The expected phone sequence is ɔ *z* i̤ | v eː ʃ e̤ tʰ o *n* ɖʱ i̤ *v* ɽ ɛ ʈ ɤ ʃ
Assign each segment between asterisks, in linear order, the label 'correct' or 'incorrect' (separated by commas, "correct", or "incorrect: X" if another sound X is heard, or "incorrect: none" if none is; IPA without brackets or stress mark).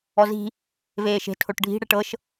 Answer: correct, incorrect: ʈ, incorrect: none